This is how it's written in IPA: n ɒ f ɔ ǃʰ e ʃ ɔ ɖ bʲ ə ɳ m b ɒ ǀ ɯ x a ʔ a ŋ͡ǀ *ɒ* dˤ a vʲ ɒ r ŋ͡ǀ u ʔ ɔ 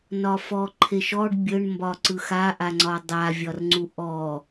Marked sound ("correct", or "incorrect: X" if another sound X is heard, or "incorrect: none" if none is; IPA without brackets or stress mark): correct